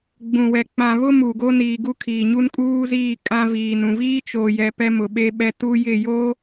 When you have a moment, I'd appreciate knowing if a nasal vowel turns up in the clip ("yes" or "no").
yes